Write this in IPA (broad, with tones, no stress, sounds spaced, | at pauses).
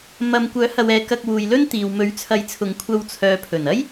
m ɐ˧ m kʷ œː˨˥ h ɐ˨ w ɛː˨˧ k ɐ˧ k̚ w uː˨ j l ɵ˥ n t̪ iː˨ w m ɵ˨˥ ɥ t͡sʰ ɐ˨˥ j t͡sʰ ʊ˨˧ ŋ kʷʰ ɐ˧ w t͡sʰ œː˨ pʰ ɵ˨˩ n ɐ˥ j